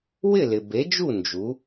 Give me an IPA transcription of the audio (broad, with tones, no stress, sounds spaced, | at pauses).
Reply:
w ɪ˥˨ l ɪ˨ b e˨˥ d͡ʒ u˥˨ n d͡ʒ u˨˥